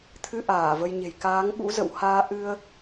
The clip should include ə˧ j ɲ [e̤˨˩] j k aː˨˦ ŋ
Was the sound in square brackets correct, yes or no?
yes